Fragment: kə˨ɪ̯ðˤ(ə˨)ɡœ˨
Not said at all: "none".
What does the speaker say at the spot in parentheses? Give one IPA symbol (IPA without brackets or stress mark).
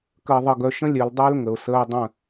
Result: ə˨